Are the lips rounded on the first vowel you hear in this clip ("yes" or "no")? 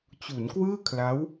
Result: yes